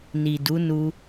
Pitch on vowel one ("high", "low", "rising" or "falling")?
low